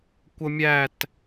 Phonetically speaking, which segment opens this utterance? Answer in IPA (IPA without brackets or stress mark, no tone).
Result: kʷ